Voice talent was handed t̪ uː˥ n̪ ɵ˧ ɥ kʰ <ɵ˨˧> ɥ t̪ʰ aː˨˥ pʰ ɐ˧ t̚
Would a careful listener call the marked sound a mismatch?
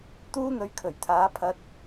yes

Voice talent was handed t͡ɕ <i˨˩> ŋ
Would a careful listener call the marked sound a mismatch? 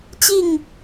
yes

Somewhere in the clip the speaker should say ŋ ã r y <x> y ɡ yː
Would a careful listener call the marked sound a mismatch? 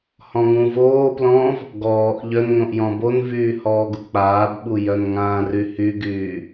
yes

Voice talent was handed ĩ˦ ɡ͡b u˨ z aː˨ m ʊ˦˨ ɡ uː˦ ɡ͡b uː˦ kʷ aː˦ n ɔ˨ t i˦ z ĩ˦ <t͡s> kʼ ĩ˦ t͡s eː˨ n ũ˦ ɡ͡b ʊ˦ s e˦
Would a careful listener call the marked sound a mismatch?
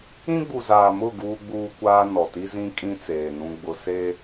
yes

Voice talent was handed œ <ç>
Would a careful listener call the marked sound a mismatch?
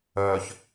no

